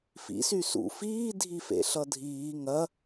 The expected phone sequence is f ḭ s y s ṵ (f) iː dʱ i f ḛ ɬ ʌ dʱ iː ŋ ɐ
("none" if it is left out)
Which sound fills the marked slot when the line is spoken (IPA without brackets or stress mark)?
f